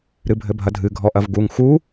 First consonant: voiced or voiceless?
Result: voiced